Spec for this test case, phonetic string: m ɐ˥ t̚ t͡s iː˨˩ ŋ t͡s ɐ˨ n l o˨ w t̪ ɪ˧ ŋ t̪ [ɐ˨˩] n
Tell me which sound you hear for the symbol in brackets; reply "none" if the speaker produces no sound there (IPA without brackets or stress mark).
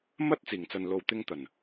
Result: ɐ˨˩